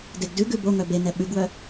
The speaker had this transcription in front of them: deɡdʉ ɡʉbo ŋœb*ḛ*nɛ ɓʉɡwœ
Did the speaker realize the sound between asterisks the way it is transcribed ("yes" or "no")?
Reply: no